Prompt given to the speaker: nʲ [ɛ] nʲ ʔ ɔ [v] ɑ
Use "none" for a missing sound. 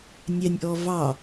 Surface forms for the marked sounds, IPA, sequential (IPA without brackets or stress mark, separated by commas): ɛ, v